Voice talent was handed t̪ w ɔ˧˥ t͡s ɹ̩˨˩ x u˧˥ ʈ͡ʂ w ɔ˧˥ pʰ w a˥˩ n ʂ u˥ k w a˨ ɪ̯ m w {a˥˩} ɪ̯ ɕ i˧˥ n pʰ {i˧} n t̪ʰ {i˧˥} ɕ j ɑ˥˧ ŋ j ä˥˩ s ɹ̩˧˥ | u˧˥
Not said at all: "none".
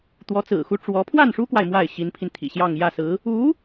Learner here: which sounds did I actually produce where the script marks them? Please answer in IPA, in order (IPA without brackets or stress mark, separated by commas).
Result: a˥˩, i˧, ḭ˨˩